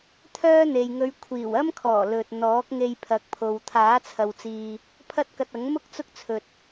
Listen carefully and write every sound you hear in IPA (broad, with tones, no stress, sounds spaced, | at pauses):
t̪ʰ œː˥ n̪ e˨ j ŋ ɵ˨˧ ɥ kʷʰ iː˨˩ w ɐ˥ m kʰ ɔː˨˩ l ɵ˨ t̚ n̪ ɔː˨˥ k̚ ŋ e˧ j pʰ ɐ˨˥ k̚ pʰ o˨ w t̪ʰ aː˨˥ t͡sʰ ɐ˨ w t͡s iː˨ | pʰ ɐ˥ t̚ k ɐ˧ t̚ ɐ˨˥ ŋ m ʊ˥ k̚ t͡s ʊ˥ k̚ t͡sʰ ɵ˨ t̚